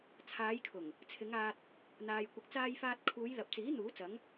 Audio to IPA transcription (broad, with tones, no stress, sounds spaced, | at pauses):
t͡sʰ aː˨˧ j kʰ ʊ˨˩ ŋ | t͡sʰ ɪ˨˧ ŋ aː˧ t̚ | n̪ aː˧ j kʷ ɪ˧ k̚ t͡s aː˥ j f aː˥ t̚ kʰ uː˨˧ j l ɐ˨ p̚ t͡s iː˨˥ n̪ uː˨˥ t͡s ɐ˨˥ ŋ